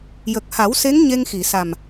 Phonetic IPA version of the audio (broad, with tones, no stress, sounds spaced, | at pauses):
j ə˨˩ k̚ h a˨˩˦ w s e˧˥ ŋ ɲ e˧ ŋ x i˨˩˨ s a˨˩ m